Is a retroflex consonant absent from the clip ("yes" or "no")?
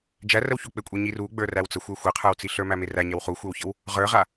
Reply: yes